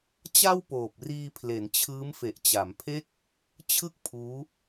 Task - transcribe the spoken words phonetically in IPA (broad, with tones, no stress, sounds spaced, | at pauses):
t͡ɕ a˥˩ w p oː˨˩ p̚ r iː˧ pʰ l e˩˦ n t͡ɕʰ ɯː˦˥ m f e˨˩ ʔ t͡ɕ a˩˦ m pʰ e˥˩ k̚ | t͡ɕʰ ɯ˥˩ k̚ pʰ uː˦˥